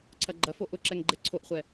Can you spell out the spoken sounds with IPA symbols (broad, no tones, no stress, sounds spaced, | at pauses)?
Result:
ǀʰ ɐ ɡ͡ǃ ɐ f o ʔ ʊ ǁ ɛ ŋ ɡ͡ǃ ɛ ǀʰ o ʔ χʷ ɛ